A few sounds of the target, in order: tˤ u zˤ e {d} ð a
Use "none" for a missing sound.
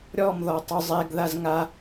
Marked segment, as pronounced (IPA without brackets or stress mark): ɡ